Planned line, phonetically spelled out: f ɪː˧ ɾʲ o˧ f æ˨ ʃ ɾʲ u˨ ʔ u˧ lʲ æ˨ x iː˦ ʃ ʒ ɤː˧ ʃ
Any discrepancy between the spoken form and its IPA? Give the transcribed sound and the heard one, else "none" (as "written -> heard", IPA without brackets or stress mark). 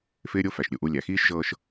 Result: none